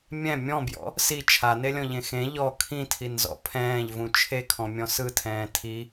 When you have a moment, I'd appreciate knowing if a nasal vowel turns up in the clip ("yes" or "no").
yes